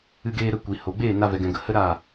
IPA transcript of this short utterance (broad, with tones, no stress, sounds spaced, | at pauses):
ɨ˧ ɡ eː˧ ɾ ə˧ kʷ i˨ h o˨ ɡ͡b eː˦˨ n a˧ v ɛ˨ ɡ ɛ̃˨ ɡ ə˨ h ə˦ ɾ a˦˨